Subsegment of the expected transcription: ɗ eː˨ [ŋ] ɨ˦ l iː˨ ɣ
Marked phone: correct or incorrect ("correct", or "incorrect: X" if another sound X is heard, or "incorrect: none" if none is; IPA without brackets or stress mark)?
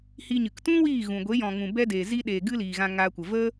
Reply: incorrect: ɡ